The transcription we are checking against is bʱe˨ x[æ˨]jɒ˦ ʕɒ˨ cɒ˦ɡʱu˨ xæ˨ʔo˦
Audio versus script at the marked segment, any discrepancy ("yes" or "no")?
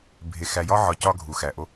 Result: no